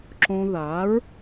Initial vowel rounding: rounded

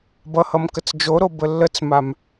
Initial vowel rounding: unrounded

